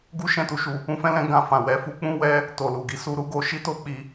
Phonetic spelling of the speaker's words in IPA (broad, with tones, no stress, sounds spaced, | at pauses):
ɡ u˦ ʃ ɛ̃˦˨ t u˧ ʃ u˧ | ũ˧ f ɛ̃˧ l ɛ̃˧ ɡ ã˧ f ã˨ w ɛ˨˦ f u˧ k͡p ũ˦ w ɛ˦ | t o˨ l u˨ ɡ i˨˦ s u˧ ɾ u˦ ɡ o˧ ʃ i˦ t o˦ k͡p i˧